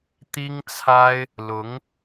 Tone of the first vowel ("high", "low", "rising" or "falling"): high